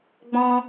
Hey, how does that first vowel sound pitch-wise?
high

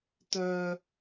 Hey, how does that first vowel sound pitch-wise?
high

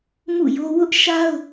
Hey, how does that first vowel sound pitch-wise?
falling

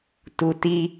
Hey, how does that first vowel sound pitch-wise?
low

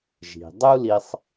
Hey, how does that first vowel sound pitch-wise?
low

